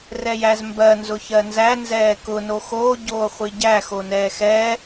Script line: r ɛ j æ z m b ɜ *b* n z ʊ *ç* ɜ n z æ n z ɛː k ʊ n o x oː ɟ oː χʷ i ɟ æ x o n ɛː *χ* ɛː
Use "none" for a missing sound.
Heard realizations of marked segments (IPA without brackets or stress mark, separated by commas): none, ç, x